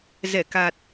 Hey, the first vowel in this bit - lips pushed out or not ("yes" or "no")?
no